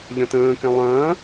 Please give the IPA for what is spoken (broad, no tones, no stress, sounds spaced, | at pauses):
ʎ ɐ̃ t ə̃ː k ɛ̃ lˠ ɐ̃ː